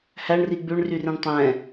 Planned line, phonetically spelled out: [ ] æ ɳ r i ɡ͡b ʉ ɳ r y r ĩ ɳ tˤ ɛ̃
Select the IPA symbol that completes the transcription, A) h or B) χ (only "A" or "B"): A